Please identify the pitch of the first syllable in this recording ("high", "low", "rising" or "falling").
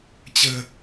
low